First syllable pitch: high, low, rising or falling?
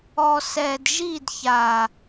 low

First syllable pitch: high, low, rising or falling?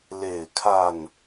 falling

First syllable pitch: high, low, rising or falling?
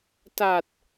low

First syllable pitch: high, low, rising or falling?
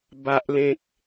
low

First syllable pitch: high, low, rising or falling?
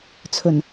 low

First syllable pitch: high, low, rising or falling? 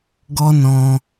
high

